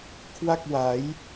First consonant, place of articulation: velar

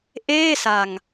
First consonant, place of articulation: glottal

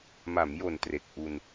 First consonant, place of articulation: labial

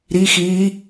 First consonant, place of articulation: alveolar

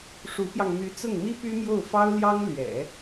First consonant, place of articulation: retroflex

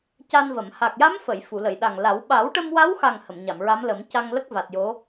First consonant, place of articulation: palatal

